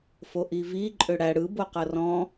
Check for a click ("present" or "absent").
present